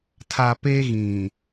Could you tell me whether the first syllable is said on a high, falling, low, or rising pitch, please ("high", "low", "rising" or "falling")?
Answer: low